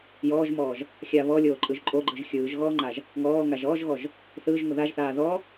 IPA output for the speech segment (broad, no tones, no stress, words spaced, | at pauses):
jɔːʒmɔːʒ | xʲaβɔ lʲoːǃʼɯʒǃʼoɡ͡ǃɯʒ xʲɯːʒɣɔːŋ͡ǃaʒ | ŋɔː ŋaʒɔːʒɣɔʒ | θɯːʒŋo ðaʒθaː ðɔ